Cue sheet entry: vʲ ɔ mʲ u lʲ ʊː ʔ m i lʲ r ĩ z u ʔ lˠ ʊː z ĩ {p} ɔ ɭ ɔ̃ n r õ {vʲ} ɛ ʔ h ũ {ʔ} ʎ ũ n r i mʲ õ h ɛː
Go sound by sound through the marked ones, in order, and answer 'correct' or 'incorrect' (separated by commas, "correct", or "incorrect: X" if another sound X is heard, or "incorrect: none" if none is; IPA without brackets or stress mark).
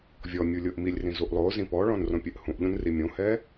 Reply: correct, incorrect: pʲ, correct